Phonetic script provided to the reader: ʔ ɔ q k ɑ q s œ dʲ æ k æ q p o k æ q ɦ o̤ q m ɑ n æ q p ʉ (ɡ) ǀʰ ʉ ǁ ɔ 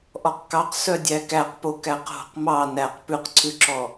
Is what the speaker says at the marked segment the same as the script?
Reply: no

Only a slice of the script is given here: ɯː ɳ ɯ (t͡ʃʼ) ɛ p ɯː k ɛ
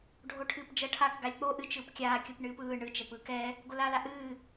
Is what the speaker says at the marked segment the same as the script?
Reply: no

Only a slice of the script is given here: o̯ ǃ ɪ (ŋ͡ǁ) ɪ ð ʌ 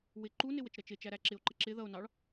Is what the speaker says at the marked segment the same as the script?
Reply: no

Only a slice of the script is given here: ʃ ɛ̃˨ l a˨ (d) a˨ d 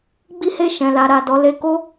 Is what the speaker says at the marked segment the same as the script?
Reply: no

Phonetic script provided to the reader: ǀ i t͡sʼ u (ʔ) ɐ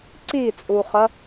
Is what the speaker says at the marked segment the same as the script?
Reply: no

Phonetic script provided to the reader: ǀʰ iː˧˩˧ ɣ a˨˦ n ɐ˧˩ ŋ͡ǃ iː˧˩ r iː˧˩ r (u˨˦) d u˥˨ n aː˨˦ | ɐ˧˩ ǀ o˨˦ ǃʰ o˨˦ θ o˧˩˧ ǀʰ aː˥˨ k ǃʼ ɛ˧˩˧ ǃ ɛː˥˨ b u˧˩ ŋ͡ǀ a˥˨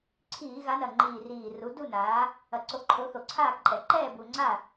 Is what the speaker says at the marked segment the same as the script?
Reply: yes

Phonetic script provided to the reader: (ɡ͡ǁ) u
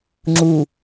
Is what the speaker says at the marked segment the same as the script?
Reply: no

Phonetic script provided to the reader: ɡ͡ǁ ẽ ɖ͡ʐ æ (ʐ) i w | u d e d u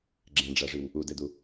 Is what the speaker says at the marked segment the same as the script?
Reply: yes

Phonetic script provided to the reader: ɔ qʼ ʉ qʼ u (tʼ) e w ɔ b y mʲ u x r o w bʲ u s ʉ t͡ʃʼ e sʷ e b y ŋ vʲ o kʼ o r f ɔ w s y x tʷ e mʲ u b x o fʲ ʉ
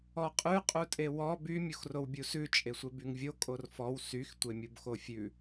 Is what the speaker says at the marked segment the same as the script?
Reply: yes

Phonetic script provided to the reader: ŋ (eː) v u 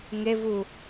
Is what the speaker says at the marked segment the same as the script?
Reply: no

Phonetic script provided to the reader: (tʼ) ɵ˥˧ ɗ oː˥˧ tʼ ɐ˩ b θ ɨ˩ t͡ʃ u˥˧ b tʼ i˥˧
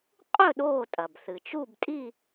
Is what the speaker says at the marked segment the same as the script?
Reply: no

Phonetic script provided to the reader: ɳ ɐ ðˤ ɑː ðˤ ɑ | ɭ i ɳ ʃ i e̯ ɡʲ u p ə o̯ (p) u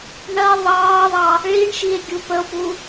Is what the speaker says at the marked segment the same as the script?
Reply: yes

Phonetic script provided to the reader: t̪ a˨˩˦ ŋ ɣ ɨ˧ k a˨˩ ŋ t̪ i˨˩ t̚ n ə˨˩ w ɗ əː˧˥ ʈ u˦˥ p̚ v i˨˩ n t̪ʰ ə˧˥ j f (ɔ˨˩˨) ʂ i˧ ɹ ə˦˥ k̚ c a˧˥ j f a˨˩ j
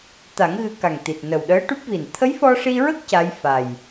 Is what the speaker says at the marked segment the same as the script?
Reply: no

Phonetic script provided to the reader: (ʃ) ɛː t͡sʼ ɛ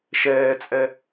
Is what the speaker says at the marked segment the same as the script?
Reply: yes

